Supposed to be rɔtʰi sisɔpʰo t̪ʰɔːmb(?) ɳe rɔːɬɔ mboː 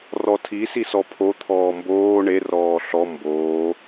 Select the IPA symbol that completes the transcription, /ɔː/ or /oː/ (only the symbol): oː